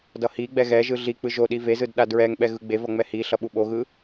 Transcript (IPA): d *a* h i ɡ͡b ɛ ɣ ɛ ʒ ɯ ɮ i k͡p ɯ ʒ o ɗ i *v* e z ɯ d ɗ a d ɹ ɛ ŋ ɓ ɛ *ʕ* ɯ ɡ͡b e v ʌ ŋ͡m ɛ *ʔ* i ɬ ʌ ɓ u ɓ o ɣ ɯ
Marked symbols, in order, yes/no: no, yes, no, no

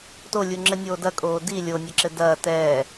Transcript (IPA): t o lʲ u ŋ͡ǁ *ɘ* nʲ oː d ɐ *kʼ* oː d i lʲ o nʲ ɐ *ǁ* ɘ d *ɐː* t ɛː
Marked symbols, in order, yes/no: yes, yes, yes, yes

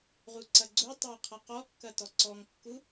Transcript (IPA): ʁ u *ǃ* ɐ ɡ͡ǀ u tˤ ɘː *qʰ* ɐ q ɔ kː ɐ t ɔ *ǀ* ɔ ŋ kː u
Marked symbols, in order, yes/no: no, yes, yes

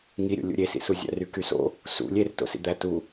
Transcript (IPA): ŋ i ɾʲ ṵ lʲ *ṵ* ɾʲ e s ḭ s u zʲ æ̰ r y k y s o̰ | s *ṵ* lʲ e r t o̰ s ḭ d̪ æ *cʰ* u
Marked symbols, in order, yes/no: yes, yes, no

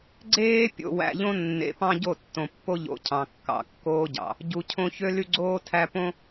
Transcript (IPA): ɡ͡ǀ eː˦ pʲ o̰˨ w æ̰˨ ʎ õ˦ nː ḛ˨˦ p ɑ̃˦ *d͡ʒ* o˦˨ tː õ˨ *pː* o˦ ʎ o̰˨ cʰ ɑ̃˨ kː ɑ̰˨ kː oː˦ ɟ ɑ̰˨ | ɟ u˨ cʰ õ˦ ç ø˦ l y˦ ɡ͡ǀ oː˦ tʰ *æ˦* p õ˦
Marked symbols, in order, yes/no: no, yes, yes

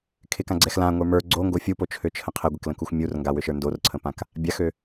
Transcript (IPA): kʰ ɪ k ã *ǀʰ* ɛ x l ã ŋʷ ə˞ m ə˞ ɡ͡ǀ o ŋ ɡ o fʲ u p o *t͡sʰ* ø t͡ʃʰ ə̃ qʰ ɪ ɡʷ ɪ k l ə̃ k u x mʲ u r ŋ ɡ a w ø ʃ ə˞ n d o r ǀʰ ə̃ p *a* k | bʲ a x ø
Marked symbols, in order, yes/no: no, no, no

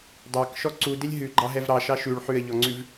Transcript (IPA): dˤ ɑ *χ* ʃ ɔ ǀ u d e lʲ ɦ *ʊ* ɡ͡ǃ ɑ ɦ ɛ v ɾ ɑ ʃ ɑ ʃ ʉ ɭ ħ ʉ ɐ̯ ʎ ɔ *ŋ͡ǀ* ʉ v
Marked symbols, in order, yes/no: no, no, yes

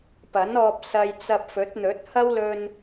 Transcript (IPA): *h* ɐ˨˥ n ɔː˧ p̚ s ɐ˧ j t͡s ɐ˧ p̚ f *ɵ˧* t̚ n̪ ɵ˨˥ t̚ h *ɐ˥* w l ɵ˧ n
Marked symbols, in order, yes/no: no, no, yes

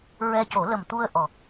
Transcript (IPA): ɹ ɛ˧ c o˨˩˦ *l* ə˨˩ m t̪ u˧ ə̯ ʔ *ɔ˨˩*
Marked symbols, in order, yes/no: yes, yes

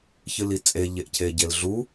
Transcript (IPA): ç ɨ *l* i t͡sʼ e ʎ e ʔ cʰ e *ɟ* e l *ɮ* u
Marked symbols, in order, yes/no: yes, yes, yes

